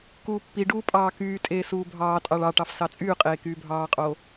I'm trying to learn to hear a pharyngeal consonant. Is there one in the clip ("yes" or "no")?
no